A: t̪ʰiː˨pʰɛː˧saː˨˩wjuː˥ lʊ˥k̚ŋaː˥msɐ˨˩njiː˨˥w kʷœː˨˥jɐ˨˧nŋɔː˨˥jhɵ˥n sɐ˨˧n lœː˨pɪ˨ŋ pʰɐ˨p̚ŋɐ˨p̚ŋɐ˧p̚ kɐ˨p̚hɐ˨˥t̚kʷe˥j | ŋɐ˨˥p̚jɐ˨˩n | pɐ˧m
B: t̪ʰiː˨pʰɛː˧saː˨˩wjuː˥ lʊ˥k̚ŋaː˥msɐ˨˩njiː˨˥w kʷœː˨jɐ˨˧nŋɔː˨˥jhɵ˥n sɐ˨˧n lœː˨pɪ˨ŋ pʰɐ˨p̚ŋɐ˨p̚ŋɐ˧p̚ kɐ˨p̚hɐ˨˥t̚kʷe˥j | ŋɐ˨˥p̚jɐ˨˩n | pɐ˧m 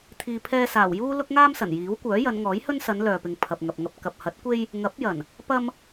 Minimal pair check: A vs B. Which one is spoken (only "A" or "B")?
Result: A